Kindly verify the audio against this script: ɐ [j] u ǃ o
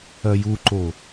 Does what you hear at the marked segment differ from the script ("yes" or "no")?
no